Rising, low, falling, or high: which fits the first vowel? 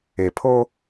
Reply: low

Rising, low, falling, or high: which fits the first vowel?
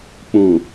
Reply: low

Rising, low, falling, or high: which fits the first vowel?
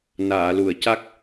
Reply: low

